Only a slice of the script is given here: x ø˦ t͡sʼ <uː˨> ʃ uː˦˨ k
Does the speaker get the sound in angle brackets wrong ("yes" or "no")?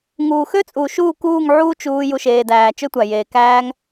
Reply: no